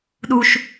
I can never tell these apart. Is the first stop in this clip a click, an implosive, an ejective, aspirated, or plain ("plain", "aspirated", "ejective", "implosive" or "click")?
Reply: implosive